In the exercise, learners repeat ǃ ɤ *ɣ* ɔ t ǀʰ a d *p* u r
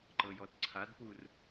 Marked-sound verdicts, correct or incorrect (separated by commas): incorrect, correct